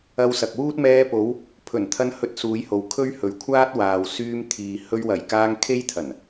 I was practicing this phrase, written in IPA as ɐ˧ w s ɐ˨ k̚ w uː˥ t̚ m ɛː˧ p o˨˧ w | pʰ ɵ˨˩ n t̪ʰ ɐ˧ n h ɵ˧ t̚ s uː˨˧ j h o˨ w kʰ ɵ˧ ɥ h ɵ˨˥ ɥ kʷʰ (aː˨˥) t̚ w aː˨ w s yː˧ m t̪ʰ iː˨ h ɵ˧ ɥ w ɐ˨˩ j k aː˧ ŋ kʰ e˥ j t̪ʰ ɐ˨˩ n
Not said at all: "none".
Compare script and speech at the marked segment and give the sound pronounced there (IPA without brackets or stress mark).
aː˥